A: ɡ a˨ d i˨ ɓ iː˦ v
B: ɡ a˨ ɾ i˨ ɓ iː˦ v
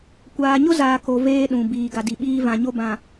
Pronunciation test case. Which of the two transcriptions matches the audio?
A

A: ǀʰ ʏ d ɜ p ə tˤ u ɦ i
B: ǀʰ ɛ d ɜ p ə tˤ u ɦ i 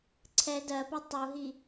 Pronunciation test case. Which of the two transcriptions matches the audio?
B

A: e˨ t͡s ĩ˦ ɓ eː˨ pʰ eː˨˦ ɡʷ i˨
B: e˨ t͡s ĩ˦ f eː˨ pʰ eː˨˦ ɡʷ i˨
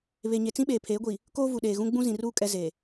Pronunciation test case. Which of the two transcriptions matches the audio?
A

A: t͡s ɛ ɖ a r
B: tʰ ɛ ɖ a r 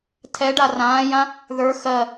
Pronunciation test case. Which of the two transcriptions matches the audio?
B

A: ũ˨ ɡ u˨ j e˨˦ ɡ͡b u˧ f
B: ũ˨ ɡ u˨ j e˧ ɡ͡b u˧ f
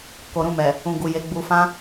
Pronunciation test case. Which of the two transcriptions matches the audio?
A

